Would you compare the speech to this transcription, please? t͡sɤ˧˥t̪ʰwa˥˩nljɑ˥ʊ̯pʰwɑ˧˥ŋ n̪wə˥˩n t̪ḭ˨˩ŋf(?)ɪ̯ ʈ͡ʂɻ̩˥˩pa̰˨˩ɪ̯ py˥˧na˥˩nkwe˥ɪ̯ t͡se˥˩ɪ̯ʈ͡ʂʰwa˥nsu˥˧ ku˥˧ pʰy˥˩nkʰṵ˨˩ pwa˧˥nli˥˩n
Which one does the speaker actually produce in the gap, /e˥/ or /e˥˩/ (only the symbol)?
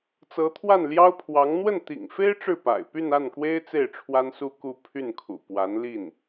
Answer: e˥